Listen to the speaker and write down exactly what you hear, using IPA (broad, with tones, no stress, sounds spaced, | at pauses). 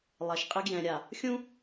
lˠ ɛ˨ ʃ qʼ ɪ˦ ɡ j ɛ̃˨ ɾʲ a˨ | xʲ ũ˦